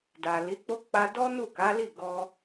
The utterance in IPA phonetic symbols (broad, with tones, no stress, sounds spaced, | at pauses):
d a˨ l i˨˦ k͡p o˦ k͡p a˧ d ɔ˦ n u˦˨ k a˨˦ l i˦˨ ɡ ɔ˧